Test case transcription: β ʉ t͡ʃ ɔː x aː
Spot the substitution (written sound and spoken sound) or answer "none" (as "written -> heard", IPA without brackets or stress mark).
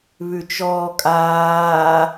x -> kʼ